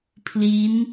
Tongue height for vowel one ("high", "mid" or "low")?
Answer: high